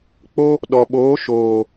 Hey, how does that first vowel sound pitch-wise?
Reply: high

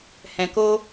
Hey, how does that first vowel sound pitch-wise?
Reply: low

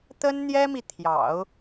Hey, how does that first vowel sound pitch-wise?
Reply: high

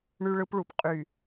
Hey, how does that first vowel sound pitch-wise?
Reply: high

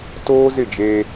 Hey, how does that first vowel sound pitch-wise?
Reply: high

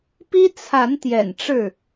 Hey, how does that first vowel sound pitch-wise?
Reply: high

